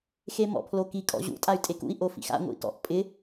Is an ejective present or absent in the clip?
present